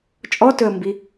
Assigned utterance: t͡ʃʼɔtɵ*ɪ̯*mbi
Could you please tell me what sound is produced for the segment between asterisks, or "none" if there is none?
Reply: ə̯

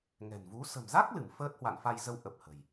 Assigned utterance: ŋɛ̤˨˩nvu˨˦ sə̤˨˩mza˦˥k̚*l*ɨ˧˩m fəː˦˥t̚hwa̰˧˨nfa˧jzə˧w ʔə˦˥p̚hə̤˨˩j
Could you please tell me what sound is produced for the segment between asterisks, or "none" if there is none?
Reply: l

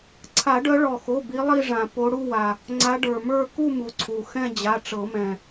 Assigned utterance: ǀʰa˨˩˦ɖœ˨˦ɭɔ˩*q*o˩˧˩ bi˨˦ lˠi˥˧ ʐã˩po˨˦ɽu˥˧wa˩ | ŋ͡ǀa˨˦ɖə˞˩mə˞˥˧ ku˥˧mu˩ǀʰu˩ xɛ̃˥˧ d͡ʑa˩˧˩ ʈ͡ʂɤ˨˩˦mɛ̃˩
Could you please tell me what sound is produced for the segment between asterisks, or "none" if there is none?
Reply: x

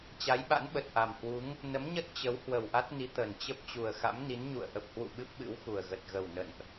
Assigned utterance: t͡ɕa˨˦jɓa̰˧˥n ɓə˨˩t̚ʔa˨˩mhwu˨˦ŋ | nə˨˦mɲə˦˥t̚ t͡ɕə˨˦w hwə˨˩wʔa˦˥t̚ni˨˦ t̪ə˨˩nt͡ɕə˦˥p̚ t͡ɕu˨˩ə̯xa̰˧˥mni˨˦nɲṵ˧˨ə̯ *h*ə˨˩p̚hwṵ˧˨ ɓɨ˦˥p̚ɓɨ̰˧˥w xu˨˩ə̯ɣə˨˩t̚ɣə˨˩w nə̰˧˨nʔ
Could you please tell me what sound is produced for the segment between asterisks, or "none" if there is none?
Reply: ʔ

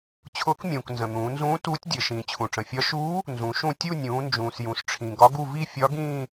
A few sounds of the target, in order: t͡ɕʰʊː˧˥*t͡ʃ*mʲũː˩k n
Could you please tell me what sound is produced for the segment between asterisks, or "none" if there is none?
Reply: k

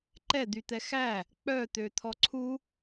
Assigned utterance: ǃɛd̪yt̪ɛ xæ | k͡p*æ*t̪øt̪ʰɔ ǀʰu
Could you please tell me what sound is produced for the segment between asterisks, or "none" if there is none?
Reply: œ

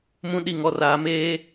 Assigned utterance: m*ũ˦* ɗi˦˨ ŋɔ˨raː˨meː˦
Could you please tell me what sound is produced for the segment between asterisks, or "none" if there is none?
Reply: ũ˦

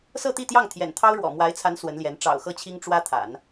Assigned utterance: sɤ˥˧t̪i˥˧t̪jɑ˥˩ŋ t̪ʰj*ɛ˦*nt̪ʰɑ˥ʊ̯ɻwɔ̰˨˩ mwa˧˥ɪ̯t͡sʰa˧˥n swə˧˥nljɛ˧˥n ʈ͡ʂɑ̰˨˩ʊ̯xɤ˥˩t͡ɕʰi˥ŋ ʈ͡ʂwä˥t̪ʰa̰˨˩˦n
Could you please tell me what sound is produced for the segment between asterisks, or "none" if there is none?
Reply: ɛ̰˨˩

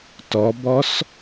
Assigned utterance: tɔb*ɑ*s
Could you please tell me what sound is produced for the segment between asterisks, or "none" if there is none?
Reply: ɔ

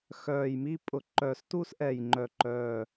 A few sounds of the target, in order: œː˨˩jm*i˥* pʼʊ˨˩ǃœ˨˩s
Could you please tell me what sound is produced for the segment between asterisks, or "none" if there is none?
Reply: i˥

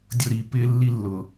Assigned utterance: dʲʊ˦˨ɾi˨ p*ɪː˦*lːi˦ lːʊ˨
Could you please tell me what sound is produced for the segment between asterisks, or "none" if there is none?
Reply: ɪː˦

